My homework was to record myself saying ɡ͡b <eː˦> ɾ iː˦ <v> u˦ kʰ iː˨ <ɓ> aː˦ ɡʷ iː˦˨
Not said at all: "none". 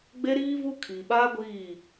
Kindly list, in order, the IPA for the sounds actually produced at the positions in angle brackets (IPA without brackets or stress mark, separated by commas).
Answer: e˦, v, ɓ